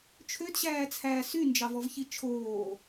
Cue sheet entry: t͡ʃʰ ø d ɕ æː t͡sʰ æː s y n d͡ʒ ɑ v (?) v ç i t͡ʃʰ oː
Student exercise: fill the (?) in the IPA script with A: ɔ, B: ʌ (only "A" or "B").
A